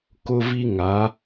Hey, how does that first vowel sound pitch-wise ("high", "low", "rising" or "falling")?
high